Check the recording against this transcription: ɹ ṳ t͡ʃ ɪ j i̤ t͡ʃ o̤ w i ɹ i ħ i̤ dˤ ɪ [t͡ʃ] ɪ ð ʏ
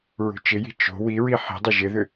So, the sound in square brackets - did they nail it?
no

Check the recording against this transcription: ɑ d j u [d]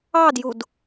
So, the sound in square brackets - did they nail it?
yes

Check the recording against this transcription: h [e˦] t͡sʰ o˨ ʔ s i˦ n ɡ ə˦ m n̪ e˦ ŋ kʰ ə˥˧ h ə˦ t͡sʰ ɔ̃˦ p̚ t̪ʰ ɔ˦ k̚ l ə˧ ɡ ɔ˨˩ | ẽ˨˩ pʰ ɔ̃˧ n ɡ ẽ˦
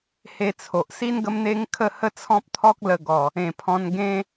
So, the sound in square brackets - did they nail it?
no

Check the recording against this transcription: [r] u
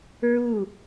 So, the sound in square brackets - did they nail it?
no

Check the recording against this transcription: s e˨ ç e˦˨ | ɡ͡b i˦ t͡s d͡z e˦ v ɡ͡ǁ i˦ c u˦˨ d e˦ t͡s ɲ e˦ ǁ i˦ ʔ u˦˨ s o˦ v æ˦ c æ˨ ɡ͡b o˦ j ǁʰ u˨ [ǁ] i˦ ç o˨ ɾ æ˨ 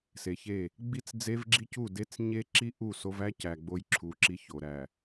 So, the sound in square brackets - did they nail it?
yes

